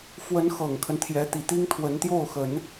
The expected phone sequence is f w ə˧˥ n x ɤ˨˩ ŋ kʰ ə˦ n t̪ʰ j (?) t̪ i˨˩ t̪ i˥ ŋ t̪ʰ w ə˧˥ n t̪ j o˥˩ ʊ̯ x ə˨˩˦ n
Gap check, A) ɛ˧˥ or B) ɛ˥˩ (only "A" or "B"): A